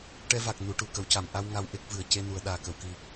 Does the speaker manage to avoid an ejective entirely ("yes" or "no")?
yes